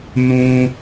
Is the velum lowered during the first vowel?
yes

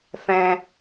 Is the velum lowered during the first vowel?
yes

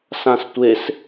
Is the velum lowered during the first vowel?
yes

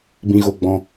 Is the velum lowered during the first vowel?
yes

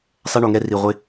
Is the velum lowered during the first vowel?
no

